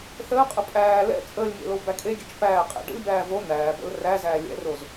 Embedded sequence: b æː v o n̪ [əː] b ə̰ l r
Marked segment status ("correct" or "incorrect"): incorrect